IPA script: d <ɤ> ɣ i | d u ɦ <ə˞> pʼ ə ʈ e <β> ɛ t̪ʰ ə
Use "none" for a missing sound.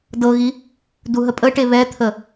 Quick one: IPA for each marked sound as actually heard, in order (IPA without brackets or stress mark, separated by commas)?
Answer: ɤ, ə, β